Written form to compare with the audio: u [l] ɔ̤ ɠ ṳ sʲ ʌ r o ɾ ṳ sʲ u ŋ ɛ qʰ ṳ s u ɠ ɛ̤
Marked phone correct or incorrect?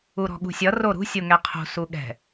incorrect